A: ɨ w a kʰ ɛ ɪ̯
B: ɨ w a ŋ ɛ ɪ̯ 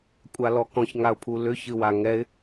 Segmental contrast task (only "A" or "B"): B